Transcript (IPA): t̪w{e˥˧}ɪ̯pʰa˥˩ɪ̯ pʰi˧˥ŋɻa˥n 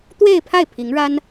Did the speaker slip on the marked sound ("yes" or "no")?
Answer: no